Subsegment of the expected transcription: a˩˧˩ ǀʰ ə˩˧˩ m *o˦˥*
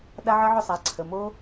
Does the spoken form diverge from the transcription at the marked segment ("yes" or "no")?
no